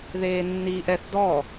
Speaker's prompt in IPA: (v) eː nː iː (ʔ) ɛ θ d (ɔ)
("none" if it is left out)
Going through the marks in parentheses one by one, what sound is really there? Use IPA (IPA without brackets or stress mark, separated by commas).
ð, ʔ, ɔ